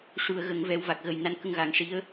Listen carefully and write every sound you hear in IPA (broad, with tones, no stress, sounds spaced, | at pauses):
ʂ u˨˩˨ ə̯ ɣ ə˨˩˨ ŋ v ɛ˨˩˦ w v a˨˩ k̚ ɣ ə˨˩ j n a˧ n k ə˧ ŋ ɣ a˨˩˦ ŋ ʂ i˧˥ ə̯